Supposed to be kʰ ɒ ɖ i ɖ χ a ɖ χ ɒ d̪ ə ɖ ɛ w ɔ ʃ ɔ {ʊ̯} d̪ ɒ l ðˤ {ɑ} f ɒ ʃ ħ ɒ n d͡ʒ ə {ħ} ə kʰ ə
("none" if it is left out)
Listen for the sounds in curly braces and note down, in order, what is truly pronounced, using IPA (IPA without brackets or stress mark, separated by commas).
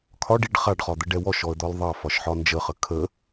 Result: ə̯, ɑ, χ